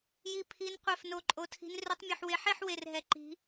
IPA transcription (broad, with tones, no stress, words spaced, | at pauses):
ji˥˧ pʰi˦˥nqʷɛ˥˧f no˦˥ǃʼo˦˥tʰi̤˦˥n rø˦˥tˤmʲø˥˧ħwe˦˥ ħe˥˧ħ we˥˧rɦɛ˦˥ ǃi̤˦˥